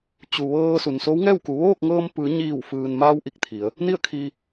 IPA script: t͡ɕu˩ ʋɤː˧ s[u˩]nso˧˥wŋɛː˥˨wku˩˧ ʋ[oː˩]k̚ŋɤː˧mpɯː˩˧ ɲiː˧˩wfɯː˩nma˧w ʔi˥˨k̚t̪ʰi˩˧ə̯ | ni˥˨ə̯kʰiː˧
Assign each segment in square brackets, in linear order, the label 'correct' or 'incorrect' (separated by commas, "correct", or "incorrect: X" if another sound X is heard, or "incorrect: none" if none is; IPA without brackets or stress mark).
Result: correct, incorrect: oː˥˨